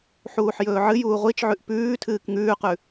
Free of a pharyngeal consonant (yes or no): no